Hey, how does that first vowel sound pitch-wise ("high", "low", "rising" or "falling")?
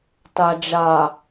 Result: low